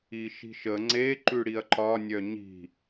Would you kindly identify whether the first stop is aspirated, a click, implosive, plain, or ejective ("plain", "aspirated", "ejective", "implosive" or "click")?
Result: click